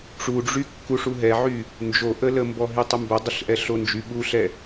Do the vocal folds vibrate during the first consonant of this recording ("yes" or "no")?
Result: no